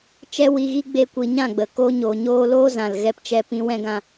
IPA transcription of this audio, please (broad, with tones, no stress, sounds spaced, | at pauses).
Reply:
t͡ʃ ɛ˦ w i˧ ɣ i˦ ɡ͡b e˦ kʷ i˧ ɲ ã˦˨ ɡ͡b ə˨ k oː˧ ɲ oː˨ ɲ oː˧ l oː˦ z ã˨ l ɣ ɛ˧ p t͡ʃ ɛ˧ p ĩ˧ w ɛ̃˦ ɡ ã˧